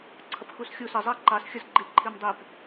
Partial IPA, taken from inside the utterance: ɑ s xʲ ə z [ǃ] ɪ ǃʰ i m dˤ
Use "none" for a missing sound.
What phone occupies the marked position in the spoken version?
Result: ɡ͡ǃ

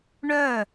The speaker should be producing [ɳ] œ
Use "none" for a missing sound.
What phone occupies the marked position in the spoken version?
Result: ɳ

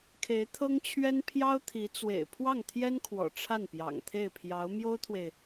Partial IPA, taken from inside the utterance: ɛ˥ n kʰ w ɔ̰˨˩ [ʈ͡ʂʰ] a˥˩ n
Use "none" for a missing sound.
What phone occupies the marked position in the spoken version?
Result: ʈ͡ʂʰ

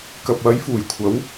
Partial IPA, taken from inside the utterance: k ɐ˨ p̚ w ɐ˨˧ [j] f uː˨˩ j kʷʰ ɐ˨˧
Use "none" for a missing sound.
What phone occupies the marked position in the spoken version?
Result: j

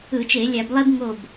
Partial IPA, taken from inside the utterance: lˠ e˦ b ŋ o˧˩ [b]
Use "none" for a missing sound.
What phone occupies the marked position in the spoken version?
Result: b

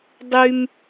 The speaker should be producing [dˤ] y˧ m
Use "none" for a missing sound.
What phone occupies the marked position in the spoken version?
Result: dˤ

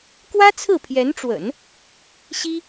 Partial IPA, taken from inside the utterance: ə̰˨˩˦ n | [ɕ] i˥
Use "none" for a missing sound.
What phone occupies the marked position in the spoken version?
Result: ɕ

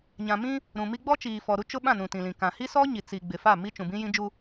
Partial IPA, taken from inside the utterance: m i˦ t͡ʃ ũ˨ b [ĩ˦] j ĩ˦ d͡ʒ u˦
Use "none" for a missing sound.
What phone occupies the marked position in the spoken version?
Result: ĩ˦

